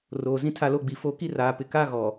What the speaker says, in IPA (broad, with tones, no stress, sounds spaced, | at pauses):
r oː˨ z ĩ˦ tʰ a˦ l o˦ ɡ͡b i˨ f o˦ k i˦ r aː˨ p ɪ˨ k a˦ ɣ ɔ˨